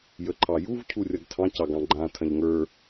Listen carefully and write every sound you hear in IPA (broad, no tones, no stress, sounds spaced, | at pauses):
j ə ǃʰ ɑ j u v cʰ u rʲ ɐ ɡ tʰ ɑ̃ c ɑ ɡ ɑ̃ ɡ͡ǃ ã tʰ ɐ̃ ʎ ŋ ə˞